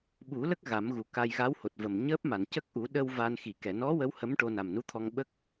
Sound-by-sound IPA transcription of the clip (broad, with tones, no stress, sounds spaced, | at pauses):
ɓ u˨˩˦ l ə˦˥ k̚ ɣ a˨˩˦ m ɣ u˨˩ k a˧ j ɣ a˧˥ w h o˨˩ t̚ v ə˨˩ m ɲ əː˦˥ p̚ m a˨˩˨ n c ə˦˥ k̚ ʔ u˨˩˦ ɗ ə˧ w v a˧ n x i˨˩˨ k ɛ˨˩˨ n ɔ˧˥ w ə˧˥ w h ə˧˥ m ʈ o˧ n a˨˩ m n u˧˥ t̪ʰ ɔ˧ ŋ ɓ ə˦˥ k̚